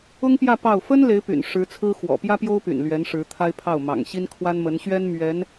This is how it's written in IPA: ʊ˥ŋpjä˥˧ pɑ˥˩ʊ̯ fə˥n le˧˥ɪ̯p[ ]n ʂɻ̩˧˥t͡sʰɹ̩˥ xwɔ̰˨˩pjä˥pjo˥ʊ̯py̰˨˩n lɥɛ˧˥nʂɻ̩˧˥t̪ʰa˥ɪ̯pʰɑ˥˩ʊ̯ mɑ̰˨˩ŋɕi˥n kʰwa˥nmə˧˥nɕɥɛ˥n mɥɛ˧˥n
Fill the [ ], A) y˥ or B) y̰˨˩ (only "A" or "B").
B